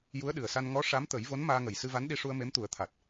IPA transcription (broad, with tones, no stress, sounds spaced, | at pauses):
j u˧˥ ə̯ ɗ ɨ˨˩ ə̯ s a˧ n ŋ ɔ˧˥ ʂ a˧˥ m t̪ ə˨˩˦ j v o˧˥ n m aː˧ ŋ ə˨˩ j s ɨ˧ v a˧˥ n ɗ i˧ ʂ u˧ ə̯ m e˧˥ m t̪ u˨˩˦ ə̯ t̪ʰ a˨˩ t̚